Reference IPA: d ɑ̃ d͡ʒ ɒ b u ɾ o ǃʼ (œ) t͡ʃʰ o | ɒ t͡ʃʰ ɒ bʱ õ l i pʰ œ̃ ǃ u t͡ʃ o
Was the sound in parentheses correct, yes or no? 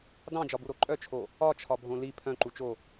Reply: yes